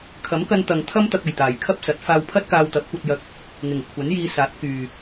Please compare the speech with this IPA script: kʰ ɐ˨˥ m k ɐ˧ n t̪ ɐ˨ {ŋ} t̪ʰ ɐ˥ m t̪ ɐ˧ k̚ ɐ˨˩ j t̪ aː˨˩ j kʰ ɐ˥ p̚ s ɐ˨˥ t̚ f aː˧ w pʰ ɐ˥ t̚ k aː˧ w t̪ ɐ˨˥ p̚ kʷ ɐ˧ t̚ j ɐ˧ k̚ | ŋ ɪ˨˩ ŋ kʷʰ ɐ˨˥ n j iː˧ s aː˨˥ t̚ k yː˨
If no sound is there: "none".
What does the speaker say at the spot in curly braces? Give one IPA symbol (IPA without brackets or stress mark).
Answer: ŋ